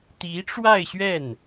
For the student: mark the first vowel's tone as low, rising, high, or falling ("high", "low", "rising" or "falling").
rising